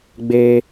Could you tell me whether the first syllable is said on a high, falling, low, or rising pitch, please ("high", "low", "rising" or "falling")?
high